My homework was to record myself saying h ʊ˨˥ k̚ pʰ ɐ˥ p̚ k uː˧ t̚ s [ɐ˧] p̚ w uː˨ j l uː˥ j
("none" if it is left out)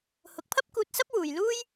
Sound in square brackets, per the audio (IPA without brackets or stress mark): ɐ˥